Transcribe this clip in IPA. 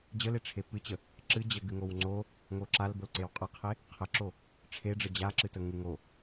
d͡ʑ ə l e ʈ͡ʂʰ e p ɨ t͡ɕ ə | ǁ ɨ d͡ʑ ə ɡ ɨ ŋ o w ŋ͡ǀ o | ŋ o ǁ a l b o l ǀ e w qʼ a qʰ e | qʰ ə ǁ o | ʈ͡ʂʰ e ɖ͡ʐ ə d͡ʑ a ǁ ɨ t ə ŋ ɨ ŋ o

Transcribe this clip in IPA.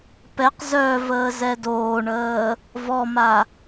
p ɛ q z œ v əː z ɛ d oː ɳ əː | v ɔ m a

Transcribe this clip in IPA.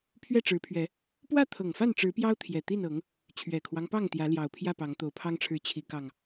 pʰ ɥ ɛ˥˨ ʈ͡ʂ ɻ̩˨˦ pʰ ɥ ɛ˨˦ | p w ä˥˨ t̪ʰ ɤ˨˩ ŋ f a˥˨ n ʈ͡ʂ ɻ̩˨˦ p j ɑ˦ ʊ̯ t̪ʰ j ɛ˨˩ t̪ i˥˨ n ɤ˨˦ ŋ | t͡ɕʰ ɥ ɛ˨˩ kʰ w ɑ˦ ŋ p ɑ˥˨ ŋ t̪ j ä˨˦ l j ɑ˨˩ ʊ̯ pʰ j ä˥˨ p ɑ˨˦ ŋ t̪ o˨˩ ʊ̯ pʰ ɑ˦ ŋ ʈ͡ʂʰ ɻ̩˨˦ t͡ɕʰ i˨˦ k ɑ˨˩ ŋ

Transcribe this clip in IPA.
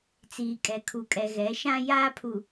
t͡s iː˨ kʼ ɛ˨ kʰ u˨ kʼ ɛ˨ ɣ ɛ˨˦ ʃ ã˦ j aː˦ pʰ u˨

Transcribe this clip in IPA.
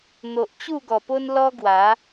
n̪ o˨ ʔ t͡ɕ u˥˧ ɡ ɔ˨˩ p o˦ n l ɔ˦ ɡ w a˨˦

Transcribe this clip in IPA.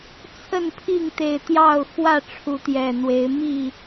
t͡sʰ ə˥˨ n pʰ i˥˨ ŋ t̪ e˨˩ ɪ̯ t̪ j ɑ˥˨ ʊ̯ x w ä˥˨ ʈ͡ʂʰ u˨˦ t̪ j ɛ˨˩ n̪ w e˨˦ ɪ̯ m i˥˨

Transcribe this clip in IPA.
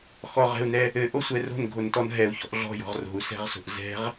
x ɔ ʁ ɛ̤ u̯ n ɛ | ɘ ʔ o sʷ ɛ r o̤ n ɡʱ o n t ɔ n ɦ ɛ u̯ ç ɔ̤ ʔ ɮ ɔ̤ j ɔ̤ ʁ r o̤ u̯ s ɛ̤ ʁ s o̤ ʔ z ɛ̤ ʁ

